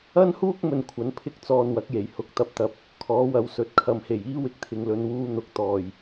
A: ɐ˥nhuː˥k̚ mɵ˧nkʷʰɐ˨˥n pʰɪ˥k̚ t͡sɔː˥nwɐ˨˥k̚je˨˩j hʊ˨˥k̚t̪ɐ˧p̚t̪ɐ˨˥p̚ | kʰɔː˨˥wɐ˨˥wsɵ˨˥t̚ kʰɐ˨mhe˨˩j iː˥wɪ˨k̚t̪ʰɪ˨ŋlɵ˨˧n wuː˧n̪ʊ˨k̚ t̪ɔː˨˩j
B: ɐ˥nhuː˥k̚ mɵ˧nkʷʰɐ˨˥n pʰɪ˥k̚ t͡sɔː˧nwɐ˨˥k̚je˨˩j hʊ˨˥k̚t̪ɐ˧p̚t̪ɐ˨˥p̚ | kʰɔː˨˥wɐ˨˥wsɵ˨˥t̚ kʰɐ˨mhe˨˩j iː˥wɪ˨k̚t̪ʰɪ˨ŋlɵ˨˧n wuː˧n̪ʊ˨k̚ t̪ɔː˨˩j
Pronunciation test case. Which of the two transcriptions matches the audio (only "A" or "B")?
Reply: B